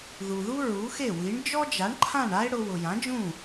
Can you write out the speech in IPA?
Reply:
ðu˩ðu˥ ɹu˩˥xe˥˩wi˩˥ɳ d͡ʒɔ˥d͡ʒa˩˥ɳ ǃʰã˥˩ɳa˥e̯ ɽʊ˧ wʊ˩ jã˩˥d͡ʒũ˥˩

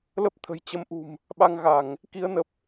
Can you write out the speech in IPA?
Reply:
lə˦˥p̚t̪ʰə̤˨˩j t͡ɕə˨˦mʔṳ˨˩m | ɓa˧ŋɣa˧˩˨ŋ | ki˨˦ə̯nə˨˩p̚

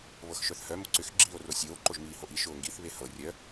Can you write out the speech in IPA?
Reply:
βɤxʃœθhœ mʊǀʏx ɡ͡ǁiːo̯rosʲoː ǃoʒmiːhoʔi ʃʊːŋɡiθ βehɤ rʲœ

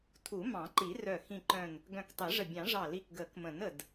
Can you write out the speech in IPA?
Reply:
tʰu˨˩˦mɑ̃˨˩˦ǃi˨˩˦rœ˧˩ xĩ˧˩ǃœ̃˧˩n | ɡœ̃˧˩ktˤe˨˩˦ʐə˧˩ bʲɑ̃˨˩˦ʐɑ˧˩li˧˩k ɡə˨˩˦kmə̃˨˩˦nə˧˩d

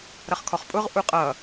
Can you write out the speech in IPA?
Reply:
ɾʌχkʰɔχpʼʊʁ ʔuqʼʌ

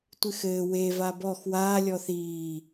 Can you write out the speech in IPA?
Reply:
tʷɨxɘː we vabɔx waː lʲɔθiː

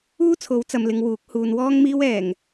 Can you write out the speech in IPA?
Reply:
uː˥t͡sʰo˨˥wt͡sɐ˨mlɪ˨ŋ wuː˨˥k̚ huː˨nwɔː˥ŋ miː˥w ɛː˨˩ŋ

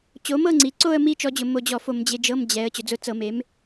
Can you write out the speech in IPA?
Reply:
t͡ɕo˩˥mɤ˥˧ŋ͡ǀi˩˧ǀo˥˧ə̯ mi˥˧t͡ʃɔ˧d͡ʑʊ˧˩˧ mo˧d͡ʑɔ˧˩˧fo˧˩˧m d͡ʑe˧d͡ʒɤ˧˥˧md͡ʑɛ˩˧ə̯ t͡ɕʊ˩˧d͡zʊ˧˥˧ t͡sɤ˧˩˧me˩˥m

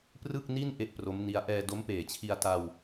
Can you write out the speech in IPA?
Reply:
prɯ˥˩k̚ni˥˩n ʔe˥˩ʔpro˦˥mni˦˥a̯ ʔɛː˧do˦˥mpeː˨˩t͡ɕʰi˧a̯ ta˧w

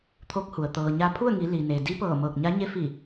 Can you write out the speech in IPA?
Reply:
t̪ʰo˧˥k̚hu˩ə̯ t̪ɤː˩ɲa˧pʰu˥˨ə̯ŋi˩˧ li˩ne˩ di˧˥pɤː˧˩ mɤː˧˩k̚ɲa˧˥ɲe˧˥ fi˧˩

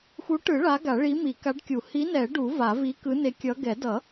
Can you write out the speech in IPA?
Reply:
xu˨˥ʈɯ˨˩˦ ɭa˨˥ɡa˨˩˦ɭi˨˥ mi˨˩˦ ka˨˥ɖkʲu˨˩˦ hi˨˥nɛ˨˩˦ ɖu˨˩˦ va˨˩˦vi˨˥kɯ˨˥ ne˨˥kʲʌ˨˥ ɡɛ˨˩˦dʌ˨˩˦

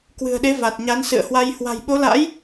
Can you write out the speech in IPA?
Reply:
kwɨ̤˨˩ə̯ɗe˨˦ va˨˩t̚ɲa˨˦nsɨ̰˧˨ə̯hwa˧j hwa̤˨˩jɓo˨˦la̰˧˥j

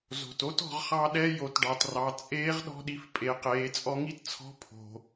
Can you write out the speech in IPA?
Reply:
zo̤˩to˥tɔ̤˩˧ʁ χɑ˧ɗɛ˧ jo˩˧tɖɑ˩trɑ˩˧ t͡sʼeː˧˥ʁɗɔ̤˧ɗi˩˧f pʼe˩˧qeː˩˧ t͡sʼɔ˧ŋi˥tt͡sʰɔ̤˧˥ pʰo̤˩

